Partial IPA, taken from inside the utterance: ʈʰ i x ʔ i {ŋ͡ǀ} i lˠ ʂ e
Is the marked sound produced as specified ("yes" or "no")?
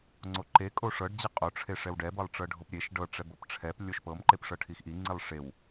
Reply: yes